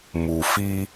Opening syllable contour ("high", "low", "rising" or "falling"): low